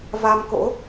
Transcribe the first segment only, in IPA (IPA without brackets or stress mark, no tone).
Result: v